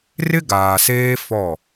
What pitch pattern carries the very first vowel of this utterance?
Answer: high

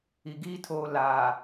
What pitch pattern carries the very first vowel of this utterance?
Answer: low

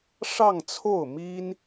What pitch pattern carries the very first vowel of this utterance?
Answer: falling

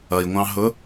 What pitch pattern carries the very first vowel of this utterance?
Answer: low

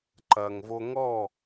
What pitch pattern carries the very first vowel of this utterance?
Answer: low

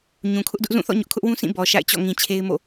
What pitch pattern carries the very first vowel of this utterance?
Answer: low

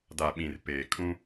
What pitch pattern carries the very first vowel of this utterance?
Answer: low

